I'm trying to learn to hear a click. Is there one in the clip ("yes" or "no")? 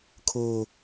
no